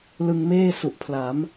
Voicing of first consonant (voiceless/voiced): voiced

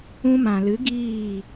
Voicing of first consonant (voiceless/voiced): voiced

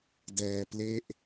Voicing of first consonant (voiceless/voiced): voiced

